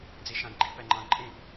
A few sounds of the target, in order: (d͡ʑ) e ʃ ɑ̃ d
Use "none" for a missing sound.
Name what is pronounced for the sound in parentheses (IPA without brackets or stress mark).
d͡z